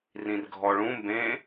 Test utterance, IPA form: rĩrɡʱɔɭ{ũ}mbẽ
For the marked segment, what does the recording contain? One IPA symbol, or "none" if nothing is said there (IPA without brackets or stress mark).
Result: ũ